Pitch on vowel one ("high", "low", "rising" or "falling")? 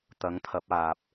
rising